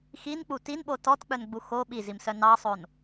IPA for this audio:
x i n k͡p u t i n ɓ o t ɔ t k͡p œ n ɡ͡b u x o ɓ i z i m s œ n ɑ sˤ o n

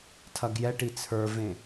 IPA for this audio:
tʰ ɐ ɡ j ɛ ʈ i t͡sʰ ə˞ v ẽ

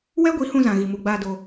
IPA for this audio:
w ɛ˦ ɡʷ i˨˦ h ũ˧ z ã˨ ɣ i˨ m u˨ ɡ͡b aː˧ d o˧

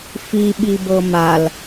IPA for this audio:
f i ɓ i b ɤ m a l

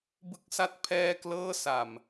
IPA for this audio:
b ɯ˦˥ k̚ s a˦˥ t̚ pʰ ɛː˥˩ k l ɤː˥˩ s a˨˩ m

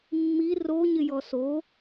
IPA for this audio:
mː i r o ɲ ɪ j ɔ s o

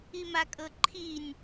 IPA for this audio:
i m a kʼ ɤ ǃʰ i nʲ

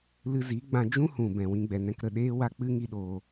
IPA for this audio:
l ɨ˧ z i˨˦ ɡ͡b ã˧ d͡ʒ ũ˦ h ũ˨ b ɛ̃˨ w ĩ˧ ɡ͡b ɛ˨ n ɛ̃˧ k ɾ ə˦˨ ɗ eː˦ w a˦ k͡p ɨ˦ ŋ i˦ ɗ oː˧

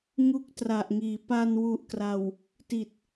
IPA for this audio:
ŋ u˥˩ k̚ t r a˨˩ ʔ ŋ iː˩˦ p a˧ n w u˨˩ ʔ k r a˨˩ w | t i˨˩ t̚

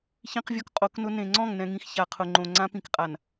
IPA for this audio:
ç ĩ˦ q vʲ ɔ˦ k qʼ o˨˦ k n ʊ˦ n ẽ˨ ŋ͡ǀ ɔ̃˦˨ ŋ n ɛ̃˨ ŋ ĩ˨ x ç a˨ qʰ ʊ˨ ŋ͡ǃ õ˨ ŋ͡ǀ ã˦ p ĩ˨ k qʼ a˨ n

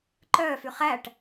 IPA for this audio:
ǃ œː f y χ æ ʈ

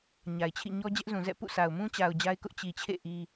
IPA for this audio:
ɲ a˨ ɪ̯ t͡ɕʰ ḭ˦˨ ɲ ɔ˦ d͡ʑ ɛ˦ ʔ z ũ˨ z ɛ̰˦˨ p ṵ˦˨ sʰ a˨ ʊ̯ m ũ˦ t͡ɕ a˨ ʊ̯ d͡ʑ a˦ ɪ̯ k ʊ˦ ʔ t͡ɕ i˨ t͡ɕʰ ḛ˦˨ ʔ i˦

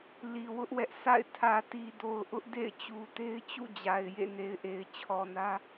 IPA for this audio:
l i˨ w ʊ˦ ʔ w ɛ˦ ʔ sʰ a̰˦˨ ɪ̯ tʰ ä˨ t i˨ d o˨ ʊ̯ ʔ ʊ˦ ʔ d ḛ˦˨ ɪ̯ t͡ɕ u˨ t e˦ ɪ̯ t͡ɕ ṵ˦˨ d͡ʑ a˨ ɪ̯ j ḛ˦˨ n e˨ ɪ̯ ʔ e˨ ɪ̯ t͡ɕʰ ɔ˨ n ä˦

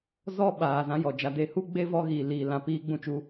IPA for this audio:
z ɔ˦ ɓ aː˨ z ã˧ j ɔ˨ d͡ʒ a˧ d e˦ h u˦ ɡ͡b e˦ v ɔ˧ ɣ iː˨ l iː˨ l ã˨ p iː˧ ɡ͡b ũ˧ t͡ʃ u˧

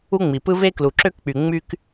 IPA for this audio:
u˥ ŋ͡m i˩ p ɯ˥ v e˥ k l u˩ ǁ ø˥ k k͡p y˩ ŋ͡m y˥ k

